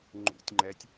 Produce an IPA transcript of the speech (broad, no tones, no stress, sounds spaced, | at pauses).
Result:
ŋ͡ǃ ṵ tʲ ŋ͡ǃ ɛ tʲ